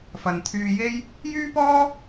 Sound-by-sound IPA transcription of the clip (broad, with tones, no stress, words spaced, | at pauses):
fɐ˨n t̪ʰyː˧je˥j | jyː˥pɔː˥